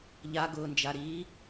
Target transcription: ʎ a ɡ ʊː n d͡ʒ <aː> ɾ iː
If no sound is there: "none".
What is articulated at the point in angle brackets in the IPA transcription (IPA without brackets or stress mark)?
a